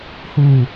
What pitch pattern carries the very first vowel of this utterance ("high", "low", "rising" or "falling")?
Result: low